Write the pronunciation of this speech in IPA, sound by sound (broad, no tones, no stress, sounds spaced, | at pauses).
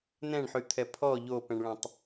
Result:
n ɛ̃ ɳ ħ y t̪ʰ ɛ pʰ ɔ ʎ o p ɛ̃ ɳ ɭ ɛ̃ tˤ